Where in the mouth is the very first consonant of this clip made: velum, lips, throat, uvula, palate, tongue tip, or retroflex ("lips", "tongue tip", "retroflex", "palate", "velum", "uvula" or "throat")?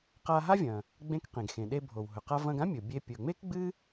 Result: uvula